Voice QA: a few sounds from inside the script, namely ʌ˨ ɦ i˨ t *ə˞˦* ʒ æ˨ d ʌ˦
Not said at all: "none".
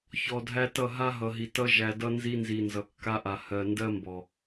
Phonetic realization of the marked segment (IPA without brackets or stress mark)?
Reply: ʌ˦